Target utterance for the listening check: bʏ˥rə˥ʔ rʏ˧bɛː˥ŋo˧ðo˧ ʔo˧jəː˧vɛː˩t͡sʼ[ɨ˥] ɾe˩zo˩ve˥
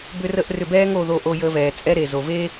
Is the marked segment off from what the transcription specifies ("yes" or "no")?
yes